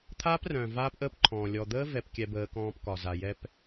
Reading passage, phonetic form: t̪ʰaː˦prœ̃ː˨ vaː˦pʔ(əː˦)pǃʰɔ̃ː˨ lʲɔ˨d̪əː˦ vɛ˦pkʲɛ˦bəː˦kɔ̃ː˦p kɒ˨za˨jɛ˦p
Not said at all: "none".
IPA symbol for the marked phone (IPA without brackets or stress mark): əː˦